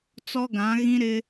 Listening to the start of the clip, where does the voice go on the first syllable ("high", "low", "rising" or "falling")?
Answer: high